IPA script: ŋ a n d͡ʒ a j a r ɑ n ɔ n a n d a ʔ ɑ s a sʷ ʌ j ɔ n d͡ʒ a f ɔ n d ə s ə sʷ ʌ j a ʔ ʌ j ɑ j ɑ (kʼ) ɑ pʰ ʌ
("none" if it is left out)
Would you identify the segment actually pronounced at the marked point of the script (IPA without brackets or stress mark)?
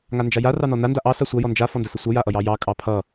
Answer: kʼ